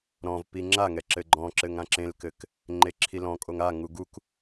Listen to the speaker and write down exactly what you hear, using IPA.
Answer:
ɾɔ̃vpi ŋ͡ǁaŋɛ ǁɘɡ͡ǃɔ̃ǁɘŋ ãǁẽlkɘk | ŋ͡ǃeǁʰilɔ̃kʼoŋ aŋu ɡuk

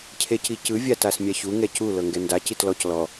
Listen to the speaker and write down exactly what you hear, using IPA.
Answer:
cʰecicɯ vʲatasmʲaçu ŋɛcu lɤŋɡɛnda citlɔc lɔ

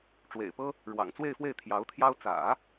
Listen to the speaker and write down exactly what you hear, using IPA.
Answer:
ʈ͡ʂwḛ˨˩ɪ̯pɤ˥ | ɻwɑ̰˨˩ŋ t͡swe˥˧ɪ̯fwe˥˩ɪ̯ t̪ʰjɑ˧˥ʊ̯t̪ʰjɑ˥ʊ̯ t͡sä̰˨˩˦

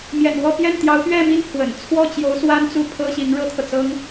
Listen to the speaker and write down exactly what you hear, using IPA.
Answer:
mjɛ̰˨˩n wɔ˥˧pjɛ˥˩n t̪jɑ˧˥ʊ̯pɥɛ˥˧mi˥˩n pʰwə̰˨˩n t͡sʰwɔ˥˩t͡ɕjo˧˥ʊ̯ swa˥nt͡su˥˩ pʰɤ˥ɕi˧˥ŋ ɻɤ˥t̪ʰɤ˨t͡sɤ˥ŋ

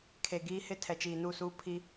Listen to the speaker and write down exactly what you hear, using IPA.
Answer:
kʰe˨ ɡiː˦hɪ˦ tʰɛ˨t͡ʃiː˨nu˦˨suː˦ pʰi˦

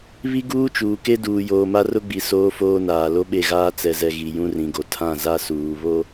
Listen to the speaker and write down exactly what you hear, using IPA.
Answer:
βi˦ɡuː˦ t͡ʃuː˨ke˦ duː˨joː˨ma˦ rʊ˦ɡ͡bi˨ soː˦foː˦naː˨ lo˦ɓe˦˨ɣaː˦ t͡sɛ˨zɛ˨ ɣi˨ jũ˦rĩ˨ɡo˨ tʰã˦˨za˦suː˨ βo˦

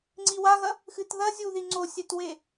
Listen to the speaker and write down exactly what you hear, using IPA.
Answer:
ŋ͡ǀiwaɣɐ | xɨtðɐzʲuði ŋ͡ǀosʲɛtwe

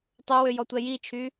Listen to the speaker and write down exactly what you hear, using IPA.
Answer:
tˤɵwø jɔtʷɛjit͡ʃʰy

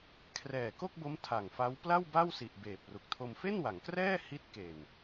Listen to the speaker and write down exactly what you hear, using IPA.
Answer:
kʰrɛː˨˩ko˥˩k̚bo˦˥m tʰa˨˩ŋfa˦˥w pla˥˩w ba˥˩wsi˨˩ʔ beː˨˩p̚ru˨˩k̚tʰo˧m fe˥˩nwa˩˦ŋkrɛː˥˩ hi˦˥t̚ke˨˩n

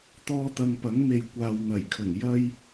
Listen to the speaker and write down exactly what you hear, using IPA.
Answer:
t̪ɔː˧t̪ɐ˨ŋpɐ˨˥ŋme˨j kʷaː˨wn̪ɐ˨˩jkʰɵ˨˩n jɐ˧j

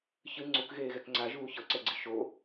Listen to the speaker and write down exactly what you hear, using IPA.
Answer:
çɯ ŋ͡ǀukɣeːɣɛk ŋ͡ǀaʒuː çɤǀɛɡ͡ǀi ʃo

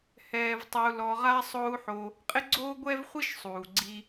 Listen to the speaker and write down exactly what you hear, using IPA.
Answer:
hɛː˧vtˤɪ˧u̯ lɔ˧ʁa˥ sˤo˥u̯ħo˧ | qʼɪ˥ɡ͡ǀoː˥ɡʷɛ˥vχʷi˥ʃ sˤuː˩ɡ͡ǀi˧

